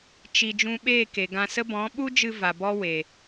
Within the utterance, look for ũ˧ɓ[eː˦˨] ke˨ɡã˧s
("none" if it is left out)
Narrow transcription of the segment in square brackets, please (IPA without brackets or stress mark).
eː˦˨